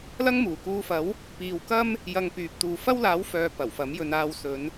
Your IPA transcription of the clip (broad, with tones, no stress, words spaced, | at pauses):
lɐ˥ŋmuː˨˩kuː˧fɐ˨˥w | piː˨wkɐ˥m | jɐ˧ŋ pyː˨p̚t̪uː˨ fɐ˥wlaː˨˥wfœː˨ pɐ˨˩wfɐ˨˥mjɵ˧n aː˧wsɵ˨˧n